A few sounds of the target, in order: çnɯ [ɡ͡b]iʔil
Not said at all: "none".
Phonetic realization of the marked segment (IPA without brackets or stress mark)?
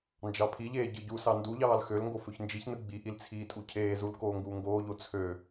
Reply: ɡ͡b